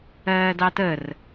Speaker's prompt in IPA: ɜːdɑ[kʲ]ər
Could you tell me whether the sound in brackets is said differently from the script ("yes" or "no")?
yes